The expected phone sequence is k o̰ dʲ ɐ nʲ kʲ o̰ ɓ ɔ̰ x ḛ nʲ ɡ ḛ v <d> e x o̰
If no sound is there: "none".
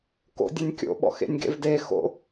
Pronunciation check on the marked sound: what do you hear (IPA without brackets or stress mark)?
d